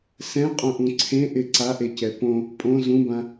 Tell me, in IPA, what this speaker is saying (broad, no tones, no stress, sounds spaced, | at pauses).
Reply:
s ɛ̃ qʼ õ ʔ ũ ǀʰ ẽ ʔ ɪ ǀ a ʔ e c ɛ p õ | pʼ õ z ũ b ã